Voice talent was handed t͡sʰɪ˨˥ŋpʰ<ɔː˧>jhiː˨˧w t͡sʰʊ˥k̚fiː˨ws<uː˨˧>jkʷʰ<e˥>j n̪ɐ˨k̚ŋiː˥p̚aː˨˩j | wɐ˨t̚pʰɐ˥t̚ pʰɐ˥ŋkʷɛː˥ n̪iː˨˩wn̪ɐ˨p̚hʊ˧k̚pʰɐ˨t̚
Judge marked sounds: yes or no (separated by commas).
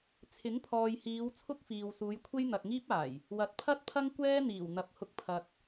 no, yes, yes